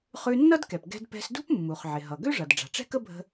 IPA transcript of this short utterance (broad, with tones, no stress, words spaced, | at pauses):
χʉ˧nːʌ˥dkɛ˩p ɡɛ̤˧d pɛ̤˧sdṳ˥p mːu˩χʕɪ˩ɦʌ˩ ɡø˥ʐʌ˩d ɖ͡ʐa̤˩ʈ͡ʂɛ̤˥kə˥bʱə̤˧